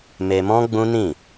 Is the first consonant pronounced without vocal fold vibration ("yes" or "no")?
no